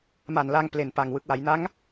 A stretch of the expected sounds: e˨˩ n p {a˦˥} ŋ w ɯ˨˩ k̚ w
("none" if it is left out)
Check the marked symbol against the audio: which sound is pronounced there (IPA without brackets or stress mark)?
a˨˩